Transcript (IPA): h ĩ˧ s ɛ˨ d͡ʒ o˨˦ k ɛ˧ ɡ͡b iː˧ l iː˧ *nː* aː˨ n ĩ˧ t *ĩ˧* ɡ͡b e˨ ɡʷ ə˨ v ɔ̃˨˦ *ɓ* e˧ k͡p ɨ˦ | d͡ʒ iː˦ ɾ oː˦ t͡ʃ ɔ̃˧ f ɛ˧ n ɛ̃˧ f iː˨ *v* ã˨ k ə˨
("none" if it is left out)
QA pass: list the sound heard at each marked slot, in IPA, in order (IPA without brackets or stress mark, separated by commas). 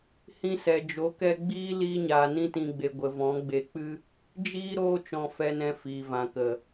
ɲ, ĩ˨, ɡ͡b, v